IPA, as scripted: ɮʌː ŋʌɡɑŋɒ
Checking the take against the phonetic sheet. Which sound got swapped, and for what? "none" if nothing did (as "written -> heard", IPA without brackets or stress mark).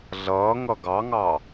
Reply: ɒ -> ɑ